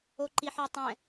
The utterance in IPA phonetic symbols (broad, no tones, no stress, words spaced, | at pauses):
oǃiħɔtˤɛ̃